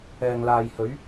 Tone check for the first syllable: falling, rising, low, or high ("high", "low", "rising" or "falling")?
low